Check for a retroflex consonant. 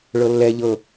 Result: present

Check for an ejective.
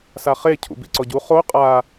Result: present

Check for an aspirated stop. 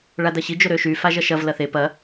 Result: absent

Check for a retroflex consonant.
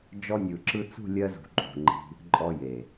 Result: absent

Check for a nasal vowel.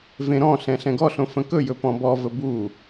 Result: present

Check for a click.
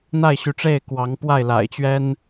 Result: absent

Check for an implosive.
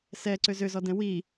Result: absent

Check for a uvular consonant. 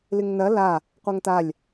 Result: present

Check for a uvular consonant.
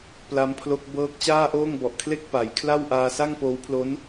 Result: absent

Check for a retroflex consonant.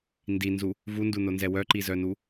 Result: absent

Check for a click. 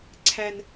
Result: present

